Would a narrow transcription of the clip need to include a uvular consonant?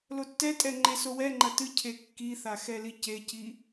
no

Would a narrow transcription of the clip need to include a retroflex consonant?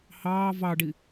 yes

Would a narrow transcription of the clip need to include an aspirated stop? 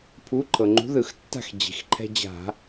yes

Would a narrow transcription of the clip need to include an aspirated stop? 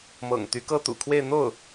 yes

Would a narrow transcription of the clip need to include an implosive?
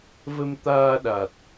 yes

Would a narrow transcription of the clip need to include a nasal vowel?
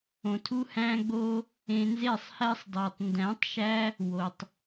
yes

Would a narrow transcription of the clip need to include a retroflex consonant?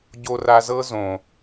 no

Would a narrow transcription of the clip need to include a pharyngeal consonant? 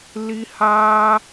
no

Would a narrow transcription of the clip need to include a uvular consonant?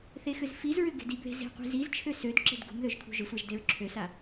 yes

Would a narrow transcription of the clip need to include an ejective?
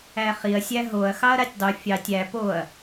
no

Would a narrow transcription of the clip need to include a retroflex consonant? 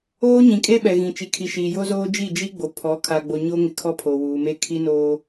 no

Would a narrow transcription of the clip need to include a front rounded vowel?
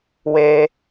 no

